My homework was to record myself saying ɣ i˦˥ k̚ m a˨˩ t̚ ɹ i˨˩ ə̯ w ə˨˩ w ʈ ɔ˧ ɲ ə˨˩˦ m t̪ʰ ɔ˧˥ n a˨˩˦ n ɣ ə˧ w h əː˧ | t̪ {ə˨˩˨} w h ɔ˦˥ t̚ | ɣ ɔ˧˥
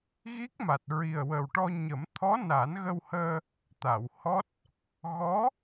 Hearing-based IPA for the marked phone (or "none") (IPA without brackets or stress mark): a˨˩˨